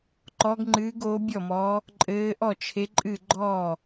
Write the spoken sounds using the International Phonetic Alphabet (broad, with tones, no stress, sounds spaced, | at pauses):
ǃ ɔ˨˦ ɡ ŋ͡ǃ ɨː˨˦ ɡ o˨˦ bʲ ɔ˥˩ m ɔ˨˦ | ǃʼ ɘː˨˦ ʔ ɔ˥˩ t͡ʃʰ e˨˦ ǃʼ ɨ˥˩ ɡ͡ǃ ɔ˥˩